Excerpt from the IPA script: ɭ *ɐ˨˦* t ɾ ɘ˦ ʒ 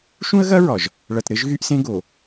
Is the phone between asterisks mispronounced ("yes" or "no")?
yes